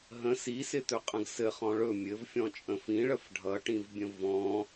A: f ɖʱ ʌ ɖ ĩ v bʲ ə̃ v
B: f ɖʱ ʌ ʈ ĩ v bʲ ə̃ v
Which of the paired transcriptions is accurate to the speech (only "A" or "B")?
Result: B